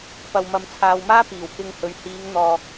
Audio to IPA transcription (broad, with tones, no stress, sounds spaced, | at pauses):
p ɐ˨ w m ɐ˨ m t͡sʰ aː˨ w m aː˥ p iː˨˩ w k ɪ˧ ŋ h ɵ˨ ɥ h iː˨˧ ŋ n̪ ɔː˧